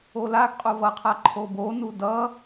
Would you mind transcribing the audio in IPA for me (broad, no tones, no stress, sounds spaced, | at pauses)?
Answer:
o l a ɡ qʼ o v ʌ qʰ a ǃʰ o b o n u d ʌ